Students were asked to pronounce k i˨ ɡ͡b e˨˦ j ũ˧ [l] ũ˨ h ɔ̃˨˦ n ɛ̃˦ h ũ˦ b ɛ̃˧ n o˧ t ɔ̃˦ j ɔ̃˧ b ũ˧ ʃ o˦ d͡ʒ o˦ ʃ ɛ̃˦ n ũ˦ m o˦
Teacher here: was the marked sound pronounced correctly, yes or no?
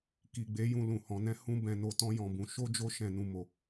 yes